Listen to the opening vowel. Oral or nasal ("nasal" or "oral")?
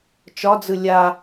oral